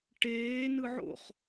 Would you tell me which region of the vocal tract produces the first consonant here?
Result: retroflex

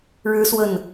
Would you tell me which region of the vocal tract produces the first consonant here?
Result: retroflex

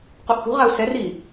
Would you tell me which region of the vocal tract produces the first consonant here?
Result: uvula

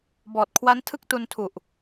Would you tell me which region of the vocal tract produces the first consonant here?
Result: lips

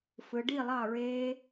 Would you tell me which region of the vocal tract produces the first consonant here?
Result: lips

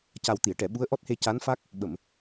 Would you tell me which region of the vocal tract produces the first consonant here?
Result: palate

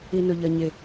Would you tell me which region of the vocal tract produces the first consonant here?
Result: tongue tip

